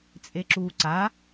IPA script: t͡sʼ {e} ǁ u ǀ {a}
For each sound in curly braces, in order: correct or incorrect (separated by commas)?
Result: correct, correct